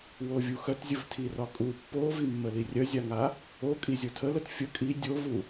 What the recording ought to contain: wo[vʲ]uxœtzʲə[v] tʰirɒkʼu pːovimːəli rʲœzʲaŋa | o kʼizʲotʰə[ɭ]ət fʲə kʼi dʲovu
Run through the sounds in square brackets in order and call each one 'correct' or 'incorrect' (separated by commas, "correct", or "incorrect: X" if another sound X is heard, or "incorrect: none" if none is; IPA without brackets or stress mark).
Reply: correct, correct, incorrect: l